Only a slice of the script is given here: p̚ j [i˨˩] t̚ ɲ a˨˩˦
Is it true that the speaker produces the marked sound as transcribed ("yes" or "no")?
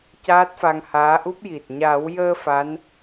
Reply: yes